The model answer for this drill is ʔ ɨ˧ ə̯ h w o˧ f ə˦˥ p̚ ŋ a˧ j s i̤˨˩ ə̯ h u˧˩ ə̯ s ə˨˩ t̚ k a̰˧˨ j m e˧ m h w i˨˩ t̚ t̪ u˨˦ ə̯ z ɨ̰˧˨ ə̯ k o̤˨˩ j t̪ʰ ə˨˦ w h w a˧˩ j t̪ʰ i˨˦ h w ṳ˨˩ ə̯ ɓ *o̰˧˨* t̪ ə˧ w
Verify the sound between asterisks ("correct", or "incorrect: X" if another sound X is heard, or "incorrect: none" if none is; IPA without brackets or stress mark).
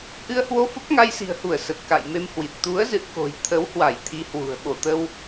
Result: incorrect: o˧˩